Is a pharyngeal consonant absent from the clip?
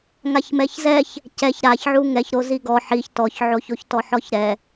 no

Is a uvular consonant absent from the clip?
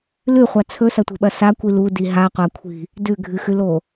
no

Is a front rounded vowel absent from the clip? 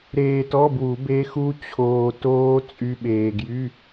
no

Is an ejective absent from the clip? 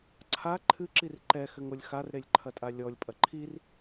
no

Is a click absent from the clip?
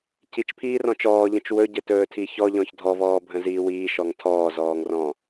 yes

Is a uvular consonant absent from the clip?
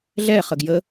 no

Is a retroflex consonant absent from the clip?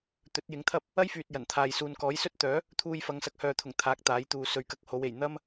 yes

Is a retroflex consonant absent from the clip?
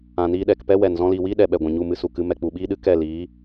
yes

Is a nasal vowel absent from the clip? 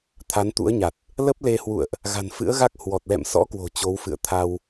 yes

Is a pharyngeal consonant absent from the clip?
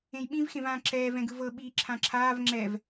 yes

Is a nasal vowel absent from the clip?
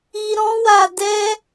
no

